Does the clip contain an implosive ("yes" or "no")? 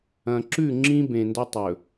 no